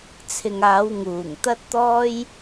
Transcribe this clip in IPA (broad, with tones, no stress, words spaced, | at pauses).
t͡sʰɪ˨ŋaː˨˧w ŋuː˨˩ŋ t̪ɐ˥t̚t̪ɔː˥j